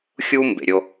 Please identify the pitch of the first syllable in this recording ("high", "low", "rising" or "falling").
high